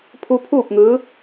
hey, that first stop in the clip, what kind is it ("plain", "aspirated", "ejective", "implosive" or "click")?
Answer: aspirated